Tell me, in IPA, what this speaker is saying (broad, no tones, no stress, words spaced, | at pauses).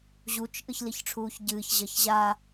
ʑut͡ʃ ʔɨçliçʈ͡ʂʰuːçɟɨːç ʑɐçʑa